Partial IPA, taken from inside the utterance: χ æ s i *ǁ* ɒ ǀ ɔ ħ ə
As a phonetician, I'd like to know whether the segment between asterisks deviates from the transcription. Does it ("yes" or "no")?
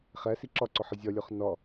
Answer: no